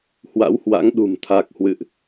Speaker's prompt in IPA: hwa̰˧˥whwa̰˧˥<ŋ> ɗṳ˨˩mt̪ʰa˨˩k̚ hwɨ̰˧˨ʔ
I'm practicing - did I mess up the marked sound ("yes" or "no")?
no